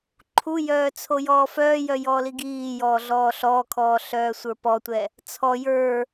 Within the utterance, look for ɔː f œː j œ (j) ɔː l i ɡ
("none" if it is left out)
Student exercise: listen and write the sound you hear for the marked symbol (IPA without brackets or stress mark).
j